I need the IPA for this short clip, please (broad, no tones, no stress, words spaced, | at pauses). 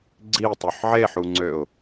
ɡ͡ǀitˤoħ ʕeħuŋ͡ǀøʊ̯